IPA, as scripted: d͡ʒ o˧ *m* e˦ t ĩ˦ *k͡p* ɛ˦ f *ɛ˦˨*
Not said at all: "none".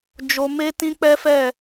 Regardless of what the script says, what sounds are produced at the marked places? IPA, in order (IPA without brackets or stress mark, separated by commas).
m, k͡p, ɛ˦˨